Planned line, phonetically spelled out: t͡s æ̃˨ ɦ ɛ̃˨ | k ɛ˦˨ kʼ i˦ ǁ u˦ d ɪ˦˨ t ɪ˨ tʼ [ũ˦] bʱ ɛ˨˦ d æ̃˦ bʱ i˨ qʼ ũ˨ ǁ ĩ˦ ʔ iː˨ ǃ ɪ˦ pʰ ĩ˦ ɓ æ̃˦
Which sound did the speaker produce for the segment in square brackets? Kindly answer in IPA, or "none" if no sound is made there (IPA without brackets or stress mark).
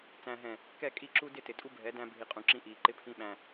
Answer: u˦